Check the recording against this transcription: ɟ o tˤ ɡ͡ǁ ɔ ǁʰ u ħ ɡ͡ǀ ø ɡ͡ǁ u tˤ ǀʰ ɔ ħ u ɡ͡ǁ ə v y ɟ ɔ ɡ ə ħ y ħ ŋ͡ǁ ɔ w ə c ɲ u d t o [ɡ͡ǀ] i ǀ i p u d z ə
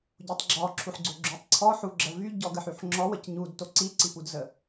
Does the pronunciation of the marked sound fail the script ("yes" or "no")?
yes